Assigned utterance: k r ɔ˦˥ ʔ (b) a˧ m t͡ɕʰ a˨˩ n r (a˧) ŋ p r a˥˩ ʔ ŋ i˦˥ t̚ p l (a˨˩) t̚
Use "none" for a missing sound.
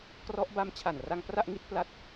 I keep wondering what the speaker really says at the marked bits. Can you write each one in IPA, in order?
b, a˧, a˦˥

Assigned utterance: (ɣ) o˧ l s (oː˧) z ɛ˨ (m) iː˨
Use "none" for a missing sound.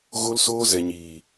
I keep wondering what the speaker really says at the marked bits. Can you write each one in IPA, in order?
ɣ, oː˧, ɲ

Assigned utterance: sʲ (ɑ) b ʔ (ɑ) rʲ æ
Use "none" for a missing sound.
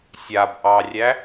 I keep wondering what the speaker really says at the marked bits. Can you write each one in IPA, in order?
a, ɑ

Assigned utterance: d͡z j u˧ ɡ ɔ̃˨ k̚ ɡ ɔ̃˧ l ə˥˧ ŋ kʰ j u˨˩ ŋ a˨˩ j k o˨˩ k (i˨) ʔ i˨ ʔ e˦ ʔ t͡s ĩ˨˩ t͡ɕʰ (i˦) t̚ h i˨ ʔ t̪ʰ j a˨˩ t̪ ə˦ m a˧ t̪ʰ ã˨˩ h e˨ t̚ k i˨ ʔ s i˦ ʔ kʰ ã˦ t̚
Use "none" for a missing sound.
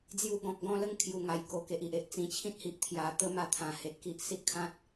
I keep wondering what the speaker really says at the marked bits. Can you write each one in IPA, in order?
e˨, ĩ˦

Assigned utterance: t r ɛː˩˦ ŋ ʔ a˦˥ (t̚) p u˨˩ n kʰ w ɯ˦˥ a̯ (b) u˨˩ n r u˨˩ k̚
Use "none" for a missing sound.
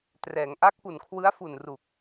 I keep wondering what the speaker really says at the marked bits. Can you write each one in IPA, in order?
k̚, f

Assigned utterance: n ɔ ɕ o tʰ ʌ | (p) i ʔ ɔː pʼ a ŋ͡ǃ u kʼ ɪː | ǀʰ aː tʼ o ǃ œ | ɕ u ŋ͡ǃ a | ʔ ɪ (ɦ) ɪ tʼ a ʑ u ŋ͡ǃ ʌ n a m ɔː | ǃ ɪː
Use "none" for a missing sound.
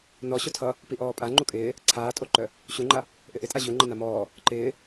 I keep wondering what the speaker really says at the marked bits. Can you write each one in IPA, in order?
p, ʔ

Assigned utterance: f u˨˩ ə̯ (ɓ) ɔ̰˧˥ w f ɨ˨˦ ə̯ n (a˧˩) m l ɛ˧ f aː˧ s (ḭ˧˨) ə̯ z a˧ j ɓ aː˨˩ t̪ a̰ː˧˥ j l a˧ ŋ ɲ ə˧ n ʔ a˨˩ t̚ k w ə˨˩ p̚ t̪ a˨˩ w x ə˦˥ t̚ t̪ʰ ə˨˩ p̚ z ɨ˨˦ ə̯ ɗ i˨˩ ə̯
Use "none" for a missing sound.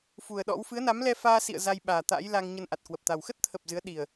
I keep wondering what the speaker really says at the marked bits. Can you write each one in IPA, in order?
ɗ, a˨˦, ḭ˧˨

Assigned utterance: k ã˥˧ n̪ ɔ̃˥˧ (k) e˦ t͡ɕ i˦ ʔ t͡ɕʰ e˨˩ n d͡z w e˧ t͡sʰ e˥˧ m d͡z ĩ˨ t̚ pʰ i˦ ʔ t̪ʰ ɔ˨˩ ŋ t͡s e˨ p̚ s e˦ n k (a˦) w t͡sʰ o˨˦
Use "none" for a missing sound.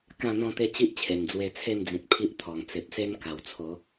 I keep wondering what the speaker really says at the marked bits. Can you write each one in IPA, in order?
t̪, a˨˩

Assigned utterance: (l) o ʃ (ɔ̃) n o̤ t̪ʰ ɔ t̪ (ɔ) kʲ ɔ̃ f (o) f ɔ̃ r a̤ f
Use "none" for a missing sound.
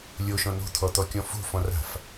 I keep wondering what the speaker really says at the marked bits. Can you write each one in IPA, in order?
lʲ, ɔ̃, ɔ, o̤

